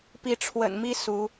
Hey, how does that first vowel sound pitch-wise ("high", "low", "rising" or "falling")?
rising